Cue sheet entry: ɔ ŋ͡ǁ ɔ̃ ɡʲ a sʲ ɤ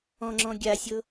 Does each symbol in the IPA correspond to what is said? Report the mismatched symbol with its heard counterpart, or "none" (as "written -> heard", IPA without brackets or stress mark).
ɔ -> ɔ̃